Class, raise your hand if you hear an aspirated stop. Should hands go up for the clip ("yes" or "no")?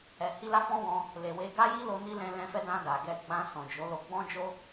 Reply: no